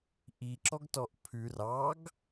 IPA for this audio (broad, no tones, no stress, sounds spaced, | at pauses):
ʔ i ǁ ɔ ɡ t ɔ ʔ pʰ ʉ r ɑ ɡ